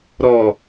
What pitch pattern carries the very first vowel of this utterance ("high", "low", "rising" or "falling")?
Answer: low